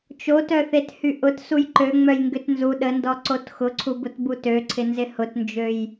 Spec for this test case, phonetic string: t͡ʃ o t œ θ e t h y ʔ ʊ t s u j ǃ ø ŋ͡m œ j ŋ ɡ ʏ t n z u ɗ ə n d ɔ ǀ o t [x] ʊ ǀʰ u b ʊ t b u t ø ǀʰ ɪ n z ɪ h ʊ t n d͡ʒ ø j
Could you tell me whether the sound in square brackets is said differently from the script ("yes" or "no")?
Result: no